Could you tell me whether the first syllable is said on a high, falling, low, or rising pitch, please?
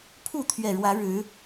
falling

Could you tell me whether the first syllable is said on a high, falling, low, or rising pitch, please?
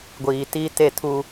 low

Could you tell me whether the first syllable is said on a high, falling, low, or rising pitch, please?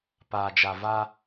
low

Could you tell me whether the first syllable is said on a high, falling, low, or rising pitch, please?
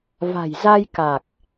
low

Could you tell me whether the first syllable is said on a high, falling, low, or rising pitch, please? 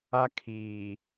high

